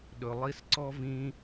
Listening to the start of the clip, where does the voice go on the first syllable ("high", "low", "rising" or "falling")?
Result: low